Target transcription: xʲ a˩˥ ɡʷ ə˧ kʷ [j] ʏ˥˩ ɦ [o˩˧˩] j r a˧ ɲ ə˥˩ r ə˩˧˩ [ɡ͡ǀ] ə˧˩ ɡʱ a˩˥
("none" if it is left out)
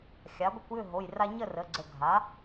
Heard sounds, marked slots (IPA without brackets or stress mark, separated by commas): j, o˩˧˩, ɡ͡ǀ